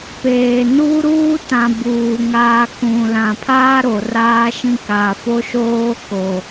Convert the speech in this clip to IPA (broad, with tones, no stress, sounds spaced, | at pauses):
p eː˨ n uː˦ ɾ uː˦ t ã˨ b uː˨ ŋ aː˨ k ũ˨ l ã˨ pʰ aː˦ ɾ o˨ r aː˦ ʃ ĩ˦ k a˨ f o˦ ʃ oː˦ k o˨